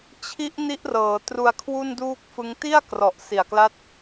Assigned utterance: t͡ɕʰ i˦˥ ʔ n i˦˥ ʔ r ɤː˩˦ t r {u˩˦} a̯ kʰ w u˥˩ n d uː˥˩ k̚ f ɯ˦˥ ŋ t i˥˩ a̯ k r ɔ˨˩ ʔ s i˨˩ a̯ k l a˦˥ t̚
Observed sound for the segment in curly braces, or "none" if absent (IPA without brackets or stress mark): u˧